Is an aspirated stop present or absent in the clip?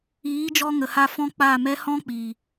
absent